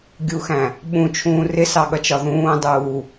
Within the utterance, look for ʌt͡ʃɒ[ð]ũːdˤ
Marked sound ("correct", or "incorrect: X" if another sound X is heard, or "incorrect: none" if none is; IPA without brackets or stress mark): correct